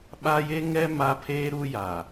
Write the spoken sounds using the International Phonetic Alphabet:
ɓ a˦ j e˦ ŋ ɛ˦ m a˦ pʰ eː˦ ɾ u˦ j a˨

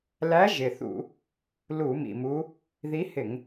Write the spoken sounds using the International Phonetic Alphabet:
l æ˧˥ ʒ ɪ˨˩ θ ṵ˧˩˧ | l u˧˩˧ m ḭ˨˩ m u˧˥ | ð i˧˥ h ɪ˧˩˧ ŋ

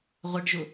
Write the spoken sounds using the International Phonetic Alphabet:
ʁʷ ɪ ɖ ʒ ʊ

